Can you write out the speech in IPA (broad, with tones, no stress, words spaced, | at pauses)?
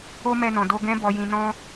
o˦mɛ˧nɔ̃˨ do˧ ɡɛ̃˦ bɔ˧jĩ˧ nɔ̃˦